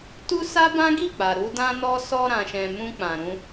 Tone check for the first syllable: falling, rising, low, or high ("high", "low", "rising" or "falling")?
high